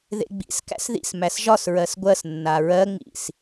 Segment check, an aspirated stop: absent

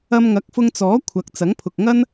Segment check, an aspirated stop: present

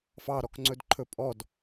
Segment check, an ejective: present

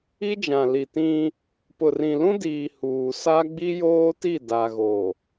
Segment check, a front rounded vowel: absent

